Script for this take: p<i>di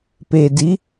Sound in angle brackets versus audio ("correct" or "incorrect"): incorrect